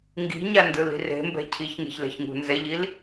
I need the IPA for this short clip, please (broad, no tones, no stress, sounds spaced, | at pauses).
ŋ ɡ i̤ ɲ a n d ɯ l i̤ r e̤ m b ɛ̤ cʰ i ç ŋ e̤ ç l ɛ̤ ç ŋ ṳ n z ɛ ʎ i l